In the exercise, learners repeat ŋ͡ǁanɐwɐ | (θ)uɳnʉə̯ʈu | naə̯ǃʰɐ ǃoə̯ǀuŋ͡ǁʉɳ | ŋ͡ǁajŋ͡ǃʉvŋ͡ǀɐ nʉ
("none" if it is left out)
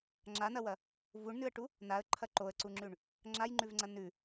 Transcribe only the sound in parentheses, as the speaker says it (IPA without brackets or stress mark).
v